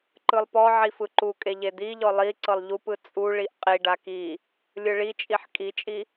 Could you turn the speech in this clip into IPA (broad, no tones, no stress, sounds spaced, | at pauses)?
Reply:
ǃ ɯ lˠ p ɔ ʕ i f ɯ ǃ u kʼ e ʎ e d̪ i ʎ ɔ lˠ i ǀ ɤ lˠ ʎ u p ɯ t͡sʼ u ɭ i ʔ qʼ i ɖ a k i | lʲ ɯ ɭ i t͡ʃʼ i ħ kʼ i t͡ʃʼ i